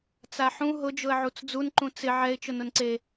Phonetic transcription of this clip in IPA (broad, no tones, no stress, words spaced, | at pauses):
t͡saħũ ɦʊd͡ʒʊə̯ʕut͡s d͡zunǃũ t͡sɪ ʕɛɪ̯ t͡ʃʊnʊnǀe